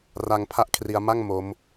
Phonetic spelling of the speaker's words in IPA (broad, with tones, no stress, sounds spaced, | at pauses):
r a˧ ŋ pʰ a˥˩ ʔ kʰ r i˧ a̯ m a˥˩ ŋ m o˦˥ m